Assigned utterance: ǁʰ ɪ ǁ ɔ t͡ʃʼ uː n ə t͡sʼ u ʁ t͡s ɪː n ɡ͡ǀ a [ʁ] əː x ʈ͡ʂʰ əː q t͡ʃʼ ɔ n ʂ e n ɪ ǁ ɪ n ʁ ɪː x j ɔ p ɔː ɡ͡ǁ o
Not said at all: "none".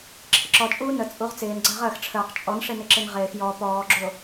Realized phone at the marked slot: ʁ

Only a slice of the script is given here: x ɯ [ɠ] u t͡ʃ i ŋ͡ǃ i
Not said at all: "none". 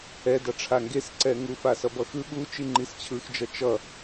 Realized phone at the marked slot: ɠ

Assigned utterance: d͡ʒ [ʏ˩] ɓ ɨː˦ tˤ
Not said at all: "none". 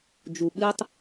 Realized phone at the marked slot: u˩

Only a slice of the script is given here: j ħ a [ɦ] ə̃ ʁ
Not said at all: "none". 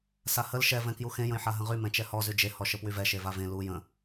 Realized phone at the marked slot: ɦ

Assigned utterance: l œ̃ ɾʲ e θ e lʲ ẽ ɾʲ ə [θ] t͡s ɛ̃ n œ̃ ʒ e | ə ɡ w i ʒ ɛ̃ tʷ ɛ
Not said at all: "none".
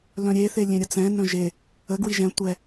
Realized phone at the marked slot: none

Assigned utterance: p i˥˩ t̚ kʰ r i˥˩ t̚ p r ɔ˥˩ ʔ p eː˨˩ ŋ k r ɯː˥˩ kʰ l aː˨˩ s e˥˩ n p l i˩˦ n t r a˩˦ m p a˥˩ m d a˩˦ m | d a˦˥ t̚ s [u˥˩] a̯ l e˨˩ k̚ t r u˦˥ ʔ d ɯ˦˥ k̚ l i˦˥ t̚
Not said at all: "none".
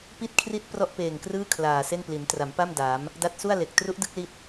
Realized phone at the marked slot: u˥˩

